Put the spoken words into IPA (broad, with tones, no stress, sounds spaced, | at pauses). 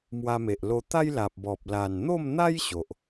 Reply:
m w a˧ m e˨ ʔ l o˧ t̪ a˦ j l a˨ p̚ b ɔ˨ p̚ l a˨˩ n n̪ o˥˧ m n̪ a˦ j ɕ o˨ ʔ